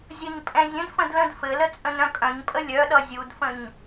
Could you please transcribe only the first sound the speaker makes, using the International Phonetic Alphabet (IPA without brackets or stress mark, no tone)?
zʲ